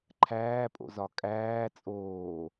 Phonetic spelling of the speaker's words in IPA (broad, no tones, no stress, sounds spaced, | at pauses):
ǃʰ æː pʼ o̰ z ɒ kʼ æː t͡sʼ oː